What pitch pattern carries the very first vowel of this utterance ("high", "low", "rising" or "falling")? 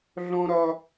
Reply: high